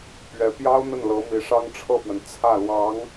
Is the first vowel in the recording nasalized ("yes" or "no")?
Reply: no